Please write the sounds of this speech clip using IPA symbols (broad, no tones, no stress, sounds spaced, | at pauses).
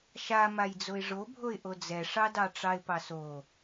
ʃ a m a j d͡z o ɪ̯ ʐ o bʱ o ɪ̯ ʔ o d͡z ɛ ʂ ɑ d ɑ ʈ͡ʂ ɑ ɪ̯ p ɑ s o